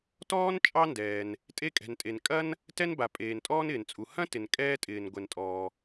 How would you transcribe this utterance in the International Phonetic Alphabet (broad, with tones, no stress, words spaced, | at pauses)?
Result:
tɔː˥n t͡ʃʼɑ˥ndɛː˩n | tʼe˥kʼɛ̤˩ntʼe˩n kʼɐ˥n | tɛ˥nba˩ pʼeː˩ntʼɔː˥n ɪː˩nt͡sʼu˩ hɐ̃˥tɪ˩n kʼɛː˥tʼɪː˩n ɡʷɛ˩ntʼɔː˩